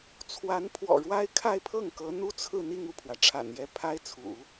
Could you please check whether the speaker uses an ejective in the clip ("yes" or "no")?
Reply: no